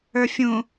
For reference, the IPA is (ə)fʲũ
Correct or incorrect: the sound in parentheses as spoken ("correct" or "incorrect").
incorrect